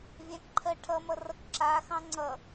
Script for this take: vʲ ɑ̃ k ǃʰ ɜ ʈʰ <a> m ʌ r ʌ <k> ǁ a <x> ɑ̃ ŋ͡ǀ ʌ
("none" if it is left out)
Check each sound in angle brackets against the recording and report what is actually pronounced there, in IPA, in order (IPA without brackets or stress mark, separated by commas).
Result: ʌ, k, x